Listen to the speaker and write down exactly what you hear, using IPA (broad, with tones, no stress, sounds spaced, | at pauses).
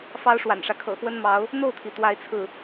f ɑ˥ ʊ̯ ʂ w a̰˨˩ n ʂ ä˦ kʰ ɤ̰˨˩ x w ə˥ n m ɑ˧˥ ʊ̯ | n̪ o˥˩ ʊ̯ t̪ʰ i˩ t̪ w a˥˧ ɪ̯ t͡sʰ ɹ̩˥˩